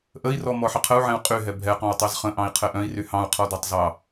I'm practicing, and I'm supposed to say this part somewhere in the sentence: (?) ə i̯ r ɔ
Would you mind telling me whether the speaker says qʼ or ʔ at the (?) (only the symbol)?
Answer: ʔ